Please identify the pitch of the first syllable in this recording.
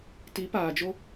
rising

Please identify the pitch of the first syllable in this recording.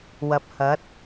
rising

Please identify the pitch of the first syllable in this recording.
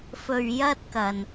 low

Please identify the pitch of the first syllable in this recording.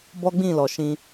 high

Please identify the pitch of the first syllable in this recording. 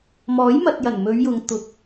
rising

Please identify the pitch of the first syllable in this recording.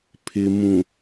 low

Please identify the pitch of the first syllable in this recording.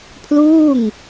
falling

